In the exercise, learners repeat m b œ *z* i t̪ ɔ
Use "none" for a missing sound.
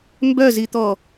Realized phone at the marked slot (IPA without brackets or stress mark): z